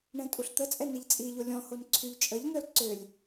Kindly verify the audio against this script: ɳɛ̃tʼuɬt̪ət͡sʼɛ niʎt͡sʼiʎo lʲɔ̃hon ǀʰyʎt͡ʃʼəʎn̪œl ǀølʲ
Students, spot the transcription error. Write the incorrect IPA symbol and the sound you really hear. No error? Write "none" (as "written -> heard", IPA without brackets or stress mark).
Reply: none